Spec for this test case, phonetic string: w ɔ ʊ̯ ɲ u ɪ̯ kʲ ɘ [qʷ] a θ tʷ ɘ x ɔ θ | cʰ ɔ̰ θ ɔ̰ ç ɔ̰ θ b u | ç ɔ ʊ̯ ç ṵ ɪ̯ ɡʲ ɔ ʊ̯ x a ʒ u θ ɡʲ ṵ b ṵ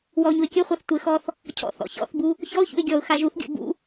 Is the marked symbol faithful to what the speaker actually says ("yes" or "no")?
no